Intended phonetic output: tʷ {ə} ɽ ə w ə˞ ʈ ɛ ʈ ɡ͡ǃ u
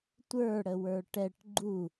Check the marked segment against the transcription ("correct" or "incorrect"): incorrect